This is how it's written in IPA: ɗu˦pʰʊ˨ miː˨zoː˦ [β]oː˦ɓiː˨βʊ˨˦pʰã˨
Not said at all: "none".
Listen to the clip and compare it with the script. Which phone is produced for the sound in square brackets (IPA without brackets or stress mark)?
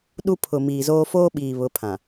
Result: f